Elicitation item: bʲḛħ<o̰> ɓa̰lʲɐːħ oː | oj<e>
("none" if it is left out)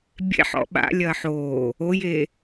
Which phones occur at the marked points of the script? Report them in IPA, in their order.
ɔ̰, e

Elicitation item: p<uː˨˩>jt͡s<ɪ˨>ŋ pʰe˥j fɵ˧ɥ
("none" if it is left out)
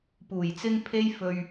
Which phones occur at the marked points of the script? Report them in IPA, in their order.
uː˨˩, ɪ˥

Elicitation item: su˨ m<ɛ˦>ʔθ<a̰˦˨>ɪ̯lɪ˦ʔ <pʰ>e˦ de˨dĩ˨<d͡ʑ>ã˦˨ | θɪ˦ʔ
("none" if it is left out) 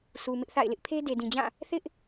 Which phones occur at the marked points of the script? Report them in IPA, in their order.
ɪ˦, a̰˦˨, pʰ, d͡ʑ

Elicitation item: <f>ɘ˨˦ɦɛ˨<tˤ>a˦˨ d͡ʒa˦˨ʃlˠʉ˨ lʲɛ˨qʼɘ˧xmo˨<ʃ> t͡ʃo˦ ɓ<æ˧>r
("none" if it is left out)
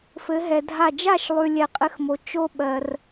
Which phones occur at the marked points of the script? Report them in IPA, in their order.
f, dʱ, none, ɜ˧

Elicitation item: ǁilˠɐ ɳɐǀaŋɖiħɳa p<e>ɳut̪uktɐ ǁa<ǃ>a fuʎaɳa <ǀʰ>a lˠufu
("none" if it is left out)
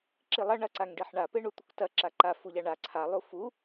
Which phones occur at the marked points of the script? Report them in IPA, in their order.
e, ǃ, ǀʰ

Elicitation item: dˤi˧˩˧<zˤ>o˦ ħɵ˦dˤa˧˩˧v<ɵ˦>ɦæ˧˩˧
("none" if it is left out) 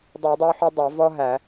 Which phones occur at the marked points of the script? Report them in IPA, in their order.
dˤ, ɔ˦

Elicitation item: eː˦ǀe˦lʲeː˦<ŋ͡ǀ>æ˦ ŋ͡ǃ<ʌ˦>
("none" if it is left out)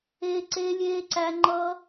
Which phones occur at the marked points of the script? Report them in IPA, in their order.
ǀ, ʌ˦

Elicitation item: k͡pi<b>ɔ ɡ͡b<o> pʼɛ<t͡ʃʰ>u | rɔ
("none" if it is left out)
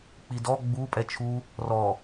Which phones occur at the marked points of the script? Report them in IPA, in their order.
d, u, t͡ʃʰ

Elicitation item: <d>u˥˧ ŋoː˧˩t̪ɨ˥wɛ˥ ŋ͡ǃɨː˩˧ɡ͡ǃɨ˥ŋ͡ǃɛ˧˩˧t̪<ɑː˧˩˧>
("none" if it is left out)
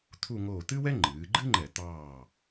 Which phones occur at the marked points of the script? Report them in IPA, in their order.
t̪ʰ, ɑː˧˩

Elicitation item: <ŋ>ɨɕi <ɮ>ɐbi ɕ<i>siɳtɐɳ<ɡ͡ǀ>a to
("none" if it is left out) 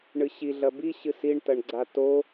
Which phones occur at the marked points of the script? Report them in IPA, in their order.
ɳ, ɮ, ɨ, ɡ͡ǀ

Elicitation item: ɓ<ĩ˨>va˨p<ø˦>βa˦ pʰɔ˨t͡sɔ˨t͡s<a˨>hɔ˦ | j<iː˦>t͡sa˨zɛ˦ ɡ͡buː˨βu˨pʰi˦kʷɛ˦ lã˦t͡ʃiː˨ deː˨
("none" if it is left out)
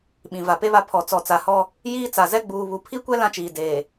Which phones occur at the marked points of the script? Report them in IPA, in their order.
ĩ˨, e˦, a˨, iː˦

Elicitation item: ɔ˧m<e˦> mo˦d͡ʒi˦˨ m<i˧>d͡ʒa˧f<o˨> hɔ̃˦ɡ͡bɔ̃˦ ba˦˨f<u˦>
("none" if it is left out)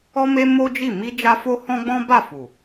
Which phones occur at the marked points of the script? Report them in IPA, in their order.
e˧, i˧, o˧, u˨

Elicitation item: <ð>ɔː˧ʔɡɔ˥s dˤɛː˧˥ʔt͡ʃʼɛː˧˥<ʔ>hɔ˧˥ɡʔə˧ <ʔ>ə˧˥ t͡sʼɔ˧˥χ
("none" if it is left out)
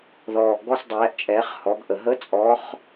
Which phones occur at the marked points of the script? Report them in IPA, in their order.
ð, χ, ɦ

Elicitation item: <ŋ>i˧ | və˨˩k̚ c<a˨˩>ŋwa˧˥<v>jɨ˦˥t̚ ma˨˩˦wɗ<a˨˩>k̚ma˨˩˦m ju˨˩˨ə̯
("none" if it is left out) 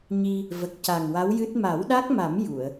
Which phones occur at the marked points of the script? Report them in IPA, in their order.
ɲ, a˨˩, w, a˦˥

